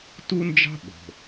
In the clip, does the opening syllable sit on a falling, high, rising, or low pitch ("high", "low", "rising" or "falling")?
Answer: high